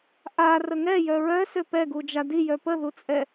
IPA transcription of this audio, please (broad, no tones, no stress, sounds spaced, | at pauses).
ʔ a r ə ŋ ɛ j œ ɹ œ s ø p ɛ ɡ u d͡ʒ a d i j œ p ə ð u t͡sʼ ɛ